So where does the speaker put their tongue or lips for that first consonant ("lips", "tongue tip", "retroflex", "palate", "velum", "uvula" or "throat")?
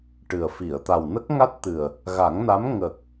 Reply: retroflex